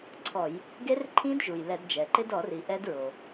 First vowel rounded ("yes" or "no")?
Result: yes